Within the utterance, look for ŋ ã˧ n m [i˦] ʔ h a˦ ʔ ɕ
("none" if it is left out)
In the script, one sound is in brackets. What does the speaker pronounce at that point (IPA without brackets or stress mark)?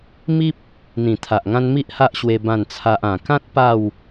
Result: i˦